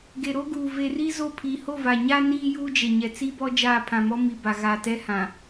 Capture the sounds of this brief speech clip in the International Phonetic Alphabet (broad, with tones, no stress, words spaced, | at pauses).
ɡe˨ɾo˦ɡuː˨ ve˨ri˦ zo˦˨pʰi˨ ho˦˨va˨ɲa˦ niː˦juː˦ d͡ʒe˨ɲɛ˨t͡si˦bɔ˦ d͡ʒaː˦˨pʰã˨mɔ˦mi˨ ba˨ɣa˨tɛ˦hã˨